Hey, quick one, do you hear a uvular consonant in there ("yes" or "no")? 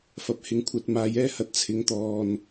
no